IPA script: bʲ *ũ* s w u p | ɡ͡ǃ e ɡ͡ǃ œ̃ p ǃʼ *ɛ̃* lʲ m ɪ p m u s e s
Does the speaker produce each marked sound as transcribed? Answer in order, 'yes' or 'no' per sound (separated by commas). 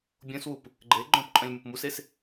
no, no